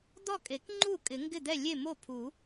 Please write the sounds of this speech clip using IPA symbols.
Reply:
d̪ ɔ˥˩ kʼ e˨˩˦ k ŋ͡ǃ u˥˩ kʼ ɪ˨˩˦ ŋ ɡ ɪ˥˩ d̪ ɛ˥˩ lʲ e˥˩ m o˥˩ pʰ u˨˩˦

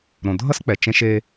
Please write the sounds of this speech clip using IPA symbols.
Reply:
ɾ õ˩ dʱ ʌ˥ s k͡p ɛ˩ t͡ʃ ẽ˧ ʃ e˧

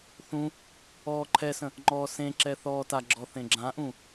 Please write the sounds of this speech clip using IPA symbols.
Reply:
θ ũ | ɔː ǃʰ ɛ s ə̃ | ŋ͡ǃ ɔː s ẽ ǁ ɛ θ ɔː t a ɡ͡ǁ ɔ θ ẽ ɡ͡ǁ ã ʔ ũ

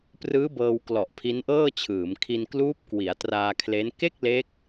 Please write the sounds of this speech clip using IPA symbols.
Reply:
p r ɯː˦˥ b ɤː˧ w k l ɔ˨˩ ʔ pʰ i˦˥ n ʔ ɤː˥˩ t͡ɕʰ ɯː˩˦ m kʰ i˧ n k l uː˦˥ p̚ k w i˩˦ a̯ t r aː˧ kʰ l e˦˥ n k e˥˩ k̚ l e˦˥ k̚

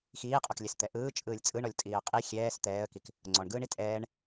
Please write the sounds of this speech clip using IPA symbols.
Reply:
x iː qʼ ɔ k lʲ ɛ s t̪ ɛ ʔ ɯː t͡ʃʼ ɯː lʲ t͡sʼ ɯ ɳ ɔ lʲ tʼ iː ə̯ qʼ i xʲ ɛː s t̪ ɛː ə̯ k i k | ŋ͡ǀ ɔ ɳ ɡ ɯː ɳ i tʼ ɛː ɳ

